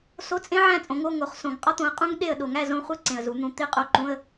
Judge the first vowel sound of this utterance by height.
mid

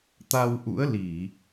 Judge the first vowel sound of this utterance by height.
low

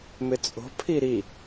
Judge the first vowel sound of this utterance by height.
high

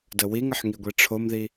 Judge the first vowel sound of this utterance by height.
mid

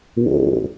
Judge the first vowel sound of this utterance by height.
mid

